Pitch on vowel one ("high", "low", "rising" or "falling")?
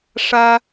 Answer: high